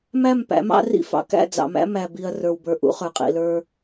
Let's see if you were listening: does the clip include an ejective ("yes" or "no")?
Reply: yes